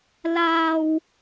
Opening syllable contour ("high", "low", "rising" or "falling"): high